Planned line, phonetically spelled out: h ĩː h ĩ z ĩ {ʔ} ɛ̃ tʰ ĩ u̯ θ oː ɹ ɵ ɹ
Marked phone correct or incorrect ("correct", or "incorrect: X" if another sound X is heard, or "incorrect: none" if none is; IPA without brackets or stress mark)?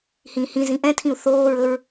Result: correct